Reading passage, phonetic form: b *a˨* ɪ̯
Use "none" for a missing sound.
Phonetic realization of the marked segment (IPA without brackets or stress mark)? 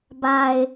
a˨